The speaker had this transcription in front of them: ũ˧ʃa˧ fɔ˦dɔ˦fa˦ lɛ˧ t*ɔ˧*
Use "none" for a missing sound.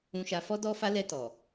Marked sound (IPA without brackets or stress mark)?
ɔ˨